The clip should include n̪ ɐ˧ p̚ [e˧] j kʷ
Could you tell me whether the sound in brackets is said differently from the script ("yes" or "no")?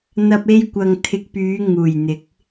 no